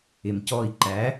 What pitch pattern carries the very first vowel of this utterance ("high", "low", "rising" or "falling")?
low